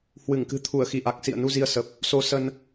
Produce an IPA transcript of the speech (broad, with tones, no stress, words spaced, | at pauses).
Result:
hwɨ˧˩ŋ kɨ̤˨˩ t̪ʰu˧˩ə̯xi˧˩ʔa˨˩k̚ sḭ˧˨ə̯nu˧ zi˧ə̯sə˨˩p̚ | so˧sə˧n